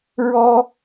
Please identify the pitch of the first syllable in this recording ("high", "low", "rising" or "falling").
high